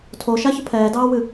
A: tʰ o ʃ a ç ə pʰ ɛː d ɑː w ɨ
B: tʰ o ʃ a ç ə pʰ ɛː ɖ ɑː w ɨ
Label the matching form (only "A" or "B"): A